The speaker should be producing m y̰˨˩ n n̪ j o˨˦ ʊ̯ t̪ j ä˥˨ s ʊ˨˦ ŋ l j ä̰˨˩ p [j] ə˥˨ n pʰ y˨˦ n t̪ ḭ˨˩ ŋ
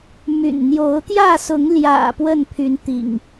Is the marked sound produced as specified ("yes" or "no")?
no